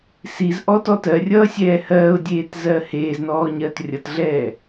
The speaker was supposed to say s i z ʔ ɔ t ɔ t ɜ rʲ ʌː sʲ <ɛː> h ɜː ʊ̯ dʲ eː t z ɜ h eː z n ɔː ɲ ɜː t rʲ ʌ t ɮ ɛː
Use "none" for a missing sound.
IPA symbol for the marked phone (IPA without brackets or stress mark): ɛː